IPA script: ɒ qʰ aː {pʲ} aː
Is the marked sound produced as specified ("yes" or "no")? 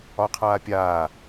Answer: yes